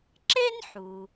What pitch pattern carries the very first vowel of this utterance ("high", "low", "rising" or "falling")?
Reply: high